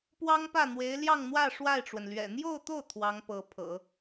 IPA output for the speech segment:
p w ɑ˥ ŋ p ä˥˩ n̪ w e˧˥ ɪ̯ l j ɑ˥˧ ŋ n̪ w ä˥˧ ʂ w a˥˩ ɪ̯ ʈ͡ʂ w ə˩ n l ɥ ɛ̰˨˩ n̪ j o˥˧ ʊ̯ t̪ o˥˩ ʊ̯ t̪ʰ w ɑ˧˥ ŋ p ɤ˧˥ pʰ ɤ̰˨˩˦

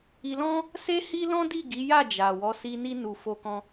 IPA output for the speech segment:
i˧ l ɔ̃˦ | s e˦ h i˦ l ɔ̃˦ d i˦˨ ɡ i˨˦ j a˦˨ d͡ʒ a˨ w ɔ˨˦ s i˧ n i˦ n u˧ f o˧ k ɔ̃˧

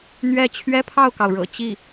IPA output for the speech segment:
n̪ ɥ ɛ˥˩ t͡ɕʰ ɥ ɛ˥ pʰ ɑ˥˩ ʊ̯ k ɑ˩ ʊ̯ ɻ ɤ̰˨˩ t͡ɕ i˥˩

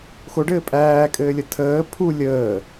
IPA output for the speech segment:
x o ɖ ɘː pʼ æː kʼ ɘː lʲ ə tʰ əː pʰ u lʲ əː

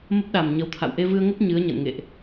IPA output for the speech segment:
m ə˦˥ p̚ ɗ a˨˩ m ɲ ə˨˦ w t̪ʰ a̰˧˨ w ʔ e˧ v ɨ˧ ə̯ ŋ ə˦˥ p̚ ɲ ɨ˨˦ ə̯ ɲ ə̰˧˨ n ŋ ḛ˧˨ ʔ

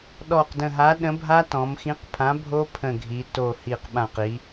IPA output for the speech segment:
ɗ ɔ˧˩ q d ə̃˧˩ ɦ a˨˥ ɗ ə̃˨˥ bʱ a˦˥ t ɔ̃˩˧ m x ĩ˨˥ q pʰ ã˨˥ bʱ o˦˥ pʰ ə̃˧˩ ɡʱ i˩˧ t o˧˩ h i˧˩ q ɓ ã˧˩ q i˩˧

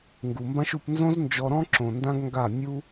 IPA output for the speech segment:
ŋ ɡ u˨ m b ã˦ ʃ u˧ p n z õ˦ z n d͡ʒ ɔ˧ ɾ ɔ̃˦ ǁ õ˨ n d ã˦ ɡ ŋ ɡ a˦˨ mʲ u˦

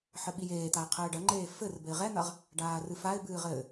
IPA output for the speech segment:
ħ ɘ ɓ i j eː t̪ a ɪ̯ qʰ ɘː ɖ ɐ ŋ͡ǃ eː f ɘ r b ɘ ɪ̯ ʁ ɛ n̪ ɐ ʁ | ɖ aː r ɨ f a ɪ̯ b ɨː ʁ ɘ

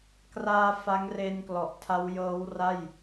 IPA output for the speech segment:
k r aː˧ f a˦˥ ŋ r eː˧ n k l ɔ˨˩ ʔ tʰ a˦˥ w j ɤː˦˥ w r a˥˩ j

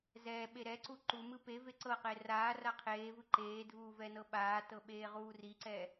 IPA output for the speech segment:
z ɛː ɓ e ɾ ɛ ǀ u ǃ u m ɯ p e v e ǀ ɤ q e r aː r a qʰ eː v ɯ ǃ eː dʱ uː v ɛ n ɤ ɓ aː t ɤ ɓ eː ʁ uː r i ǀ ɛ

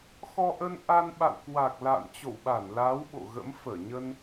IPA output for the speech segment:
x ɔ˧ ʔ ə˧ n ʔ a˧ n ɓ a̰˧˨ w k w a˨˩ k̚ l a̰ː˧˨ n t͡ɕ o̰˧˨ w ɓ a˧˩ n l aː˨˦ w ɓ o̰˧˨ ɣ ə̰˧˥ m f əː˧˩ ɲ ə˧ n

